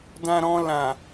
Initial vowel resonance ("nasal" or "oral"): nasal